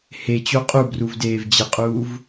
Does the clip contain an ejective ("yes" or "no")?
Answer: yes